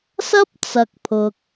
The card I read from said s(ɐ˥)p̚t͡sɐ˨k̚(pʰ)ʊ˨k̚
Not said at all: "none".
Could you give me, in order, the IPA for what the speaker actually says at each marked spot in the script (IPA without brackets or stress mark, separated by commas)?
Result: ɐ˥, pʰ